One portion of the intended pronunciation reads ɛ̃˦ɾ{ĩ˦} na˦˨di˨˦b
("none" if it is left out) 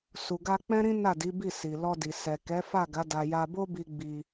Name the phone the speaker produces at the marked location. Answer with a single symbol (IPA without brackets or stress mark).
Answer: ĩ˦